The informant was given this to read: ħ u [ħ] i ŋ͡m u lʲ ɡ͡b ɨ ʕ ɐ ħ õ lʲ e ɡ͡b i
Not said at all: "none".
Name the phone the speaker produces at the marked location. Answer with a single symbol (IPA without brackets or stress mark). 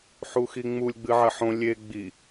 x